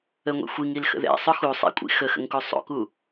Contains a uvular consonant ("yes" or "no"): no